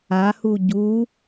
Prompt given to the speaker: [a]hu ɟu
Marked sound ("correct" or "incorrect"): correct